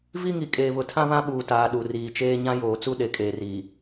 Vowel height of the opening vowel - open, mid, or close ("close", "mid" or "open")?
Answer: close